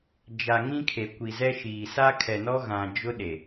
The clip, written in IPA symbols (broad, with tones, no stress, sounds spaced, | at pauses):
d͡ʒ a˨ ŋ ĩ˦ kʰ e˨ kʷ i˨ z ɛ˦ ʃ iː˨ s a˦ kʰ ɛ˨ n ɔ˦ ɣ ã˨ d͡ʒ ʊ˦ ɗ e˨